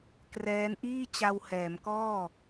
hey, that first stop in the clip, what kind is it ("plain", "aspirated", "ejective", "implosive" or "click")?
plain